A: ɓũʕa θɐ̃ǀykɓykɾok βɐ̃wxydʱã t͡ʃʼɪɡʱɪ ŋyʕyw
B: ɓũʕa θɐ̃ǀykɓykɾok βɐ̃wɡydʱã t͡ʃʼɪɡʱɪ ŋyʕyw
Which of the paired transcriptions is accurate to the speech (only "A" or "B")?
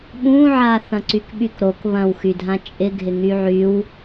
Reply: A